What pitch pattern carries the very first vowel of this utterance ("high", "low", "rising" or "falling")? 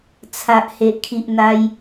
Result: low